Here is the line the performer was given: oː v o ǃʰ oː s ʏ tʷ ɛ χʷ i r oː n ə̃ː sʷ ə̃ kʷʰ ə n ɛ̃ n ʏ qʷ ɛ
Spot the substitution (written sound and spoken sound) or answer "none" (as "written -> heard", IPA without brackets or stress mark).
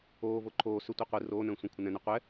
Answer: χʷ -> qʷ